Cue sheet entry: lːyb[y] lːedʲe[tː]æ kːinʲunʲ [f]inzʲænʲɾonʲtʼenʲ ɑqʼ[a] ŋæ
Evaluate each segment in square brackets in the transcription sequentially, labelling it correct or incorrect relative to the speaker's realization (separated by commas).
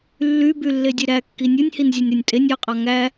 correct, incorrect, incorrect, incorrect